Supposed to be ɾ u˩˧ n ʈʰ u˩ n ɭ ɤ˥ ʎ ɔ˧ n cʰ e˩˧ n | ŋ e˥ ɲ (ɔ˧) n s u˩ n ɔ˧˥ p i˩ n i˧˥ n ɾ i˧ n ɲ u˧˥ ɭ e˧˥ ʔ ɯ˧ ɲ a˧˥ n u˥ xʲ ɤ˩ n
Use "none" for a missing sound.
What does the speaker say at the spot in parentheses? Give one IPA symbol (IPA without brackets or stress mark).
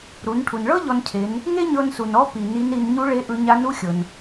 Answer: ɤ˧